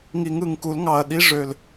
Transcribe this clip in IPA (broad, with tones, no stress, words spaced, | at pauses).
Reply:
ŋi˨˩˦ŋɯ˨˩ŋku˨˩˦l ŋɑ˨˩ɐ̯ ɗi˨˥ʐø˨˩l